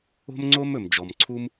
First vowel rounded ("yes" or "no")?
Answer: yes